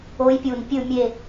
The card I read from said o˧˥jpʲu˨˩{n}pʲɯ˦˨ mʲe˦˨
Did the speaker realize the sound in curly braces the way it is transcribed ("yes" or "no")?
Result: yes